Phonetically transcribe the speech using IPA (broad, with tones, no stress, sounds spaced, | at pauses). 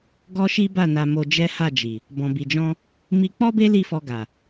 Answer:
ɡ ɔ˦ ʃ i˦ b a˦˨ n a˧ m o˧ d͡ʒ ɛ˦ h a˦˨ d͡ʒ i˨ | b ɔ̃˨ b i˨ d͡ʒ ɔ̃˧ | m i˧ k͡p ɔ˦ b e˦ l i˦˨ f ɔ˧ ɡ a˨